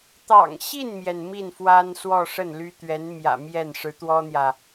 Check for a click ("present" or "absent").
absent